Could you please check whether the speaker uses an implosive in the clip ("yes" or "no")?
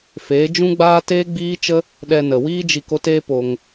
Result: yes